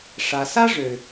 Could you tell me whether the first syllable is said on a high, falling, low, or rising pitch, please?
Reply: low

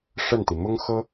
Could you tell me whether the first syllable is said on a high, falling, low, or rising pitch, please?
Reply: falling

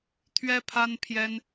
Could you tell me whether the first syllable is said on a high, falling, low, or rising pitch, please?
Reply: high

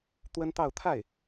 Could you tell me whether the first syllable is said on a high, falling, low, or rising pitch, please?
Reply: high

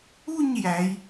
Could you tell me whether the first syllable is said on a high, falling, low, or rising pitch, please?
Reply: falling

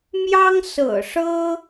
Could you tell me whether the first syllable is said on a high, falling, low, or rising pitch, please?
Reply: high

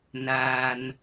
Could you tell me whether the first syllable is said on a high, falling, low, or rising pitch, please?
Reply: low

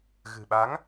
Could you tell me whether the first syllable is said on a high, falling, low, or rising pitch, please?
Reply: low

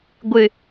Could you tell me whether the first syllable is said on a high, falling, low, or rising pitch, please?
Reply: low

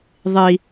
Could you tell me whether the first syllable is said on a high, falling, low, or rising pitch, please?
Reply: high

